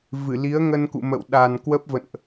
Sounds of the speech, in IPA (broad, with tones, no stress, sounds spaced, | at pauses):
v ɨ˧˩ l i˨˦ ə̯ ŋ ə˧ n k ṵ˧˨ m ə̰˧˨ w ɗ a˨˩ n k w ə˦˥ p̚ v ə̰˧˨ n ʔ